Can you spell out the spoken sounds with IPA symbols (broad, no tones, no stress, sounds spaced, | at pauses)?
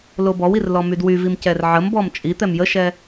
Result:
l o b ɔ w i r l ɔ m y d w y v i m c ɛ r ʕ ə m b ɔ m t͡ʃʼ i t̪ ɛ m j ə ʃ ɛ